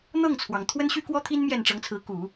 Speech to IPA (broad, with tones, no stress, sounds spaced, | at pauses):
n̪ ɤ˥˩ ŋ t͡sʰ w ɑ˩ ŋ t̪ʰ w ə˥ n ɕ y˥ k w ɔ˥ t̪ʰ i˥ n m j ɛ˥˩ n ʈ͡ʂ ɤ˧˥ ŋ t͡sʰ ɹ̩˧˥ k u˨˩˦